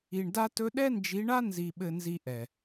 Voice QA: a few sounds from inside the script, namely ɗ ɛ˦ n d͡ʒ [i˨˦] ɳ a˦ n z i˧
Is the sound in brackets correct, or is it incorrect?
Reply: correct